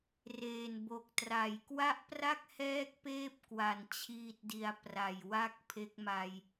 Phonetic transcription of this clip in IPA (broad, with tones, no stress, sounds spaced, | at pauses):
r eː˨˩ n b o˨˩ k̚ t r a˨˩ j k w a˥˩ ʔ p r a˥˩ k̚ h ɛː˦˥ k̚ p eː˦˥ p̚ k w a˨˩ n t͡ɕʰ iː˥˩ t̚ d i˧ a̯ p r a˨˩ j w a˥˩ k̚ pʰ e˦˥ k̚ m a˧ j